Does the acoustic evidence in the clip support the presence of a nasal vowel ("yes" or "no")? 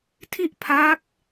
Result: no